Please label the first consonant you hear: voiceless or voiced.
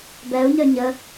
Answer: voiced